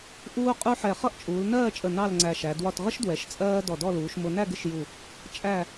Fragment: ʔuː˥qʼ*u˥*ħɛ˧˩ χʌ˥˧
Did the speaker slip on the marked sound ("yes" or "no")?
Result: no